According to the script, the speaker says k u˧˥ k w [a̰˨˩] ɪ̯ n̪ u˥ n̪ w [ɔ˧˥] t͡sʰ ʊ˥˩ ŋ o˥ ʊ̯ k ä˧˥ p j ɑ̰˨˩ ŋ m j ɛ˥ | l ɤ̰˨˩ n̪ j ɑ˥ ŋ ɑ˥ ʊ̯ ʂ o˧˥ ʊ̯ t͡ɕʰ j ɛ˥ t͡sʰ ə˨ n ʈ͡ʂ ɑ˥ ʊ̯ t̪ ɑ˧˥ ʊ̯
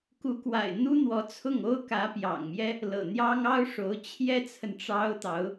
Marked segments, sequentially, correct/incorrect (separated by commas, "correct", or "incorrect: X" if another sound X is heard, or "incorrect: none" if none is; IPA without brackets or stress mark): correct, correct